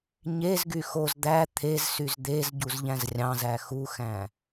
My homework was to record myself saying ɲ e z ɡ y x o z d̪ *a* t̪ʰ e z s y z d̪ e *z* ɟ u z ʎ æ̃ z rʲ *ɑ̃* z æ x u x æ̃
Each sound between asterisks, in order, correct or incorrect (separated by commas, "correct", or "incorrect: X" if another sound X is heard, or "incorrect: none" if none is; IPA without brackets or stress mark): incorrect: æ, correct, correct